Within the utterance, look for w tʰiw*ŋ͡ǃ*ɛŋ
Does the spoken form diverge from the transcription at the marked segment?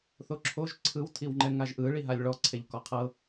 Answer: no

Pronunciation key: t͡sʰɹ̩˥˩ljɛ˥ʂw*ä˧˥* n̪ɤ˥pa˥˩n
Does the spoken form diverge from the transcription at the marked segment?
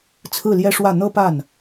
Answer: yes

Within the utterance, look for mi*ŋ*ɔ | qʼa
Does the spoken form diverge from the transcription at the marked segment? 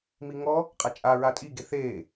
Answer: no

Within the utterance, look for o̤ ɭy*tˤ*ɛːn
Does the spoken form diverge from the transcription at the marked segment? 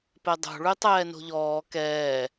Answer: no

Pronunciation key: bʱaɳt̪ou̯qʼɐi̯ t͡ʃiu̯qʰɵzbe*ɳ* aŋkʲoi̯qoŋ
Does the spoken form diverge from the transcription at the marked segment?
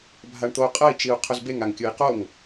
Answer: yes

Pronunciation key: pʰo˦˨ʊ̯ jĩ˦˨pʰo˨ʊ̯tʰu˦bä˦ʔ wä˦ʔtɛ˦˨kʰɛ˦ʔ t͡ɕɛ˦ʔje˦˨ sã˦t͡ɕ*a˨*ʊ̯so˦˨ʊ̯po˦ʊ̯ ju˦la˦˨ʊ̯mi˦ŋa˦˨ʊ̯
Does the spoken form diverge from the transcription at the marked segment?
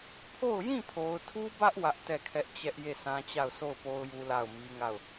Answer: yes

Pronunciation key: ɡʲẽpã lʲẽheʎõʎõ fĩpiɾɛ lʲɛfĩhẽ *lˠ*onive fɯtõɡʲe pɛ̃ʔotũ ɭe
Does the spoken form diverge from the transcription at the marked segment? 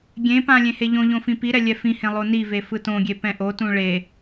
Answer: no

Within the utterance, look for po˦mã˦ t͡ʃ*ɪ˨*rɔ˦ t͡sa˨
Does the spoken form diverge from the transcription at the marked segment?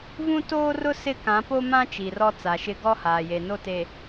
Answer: yes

